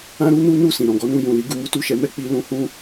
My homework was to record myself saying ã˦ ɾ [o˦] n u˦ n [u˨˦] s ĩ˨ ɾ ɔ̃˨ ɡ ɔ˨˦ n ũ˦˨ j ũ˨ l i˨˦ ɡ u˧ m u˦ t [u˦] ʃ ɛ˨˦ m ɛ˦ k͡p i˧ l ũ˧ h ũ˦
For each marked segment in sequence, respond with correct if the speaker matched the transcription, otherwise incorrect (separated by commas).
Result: incorrect, incorrect, incorrect